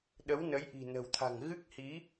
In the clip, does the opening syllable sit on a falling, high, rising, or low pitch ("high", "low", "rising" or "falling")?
rising